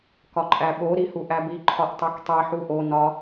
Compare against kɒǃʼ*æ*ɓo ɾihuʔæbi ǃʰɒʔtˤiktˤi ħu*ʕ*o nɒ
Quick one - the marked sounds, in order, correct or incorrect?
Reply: correct, incorrect: ʔ

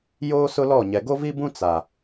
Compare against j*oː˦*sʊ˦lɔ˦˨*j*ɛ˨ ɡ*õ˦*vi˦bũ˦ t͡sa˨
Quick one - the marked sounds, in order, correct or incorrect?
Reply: correct, incorrect: ɲ, incorrect: o˦

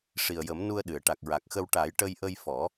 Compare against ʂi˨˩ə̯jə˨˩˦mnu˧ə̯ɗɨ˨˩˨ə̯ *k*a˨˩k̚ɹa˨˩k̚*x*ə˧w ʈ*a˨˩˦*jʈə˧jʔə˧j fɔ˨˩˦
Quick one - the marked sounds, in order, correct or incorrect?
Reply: incorrect: ʈ, correct, correct

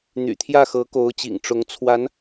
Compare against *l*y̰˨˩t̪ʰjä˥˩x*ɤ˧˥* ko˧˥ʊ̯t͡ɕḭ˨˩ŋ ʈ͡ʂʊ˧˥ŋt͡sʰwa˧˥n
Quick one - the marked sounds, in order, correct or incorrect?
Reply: incorrect: n̪, correct

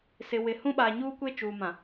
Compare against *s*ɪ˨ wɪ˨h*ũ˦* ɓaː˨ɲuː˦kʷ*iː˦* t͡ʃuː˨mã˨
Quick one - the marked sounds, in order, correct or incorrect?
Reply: correct, correct, incorrect: eː˦

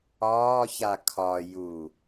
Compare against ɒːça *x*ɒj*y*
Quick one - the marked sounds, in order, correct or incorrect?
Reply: incorrect: kʰ, incorrect: u

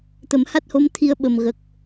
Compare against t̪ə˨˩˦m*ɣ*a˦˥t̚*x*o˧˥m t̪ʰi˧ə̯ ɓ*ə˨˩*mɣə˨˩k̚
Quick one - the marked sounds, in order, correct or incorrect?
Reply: incorrect: h, incorrect: h, correct

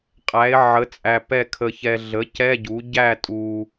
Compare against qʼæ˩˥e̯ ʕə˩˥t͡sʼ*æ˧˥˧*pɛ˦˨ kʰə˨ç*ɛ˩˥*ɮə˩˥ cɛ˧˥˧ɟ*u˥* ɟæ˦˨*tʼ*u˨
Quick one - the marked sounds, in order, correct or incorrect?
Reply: incorrect: æ˨, incorrect: ɛ˨, incorrect: u˩˥, correct

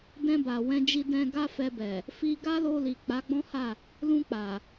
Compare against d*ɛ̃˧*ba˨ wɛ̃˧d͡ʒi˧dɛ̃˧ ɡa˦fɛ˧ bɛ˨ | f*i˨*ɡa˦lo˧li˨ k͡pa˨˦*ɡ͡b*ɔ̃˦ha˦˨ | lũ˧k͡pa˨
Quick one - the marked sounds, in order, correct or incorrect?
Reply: correct, incorrect: i˧, correct

